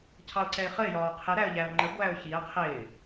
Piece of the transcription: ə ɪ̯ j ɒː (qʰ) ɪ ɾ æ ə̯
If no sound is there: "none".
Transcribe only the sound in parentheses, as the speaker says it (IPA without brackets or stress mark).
qʰ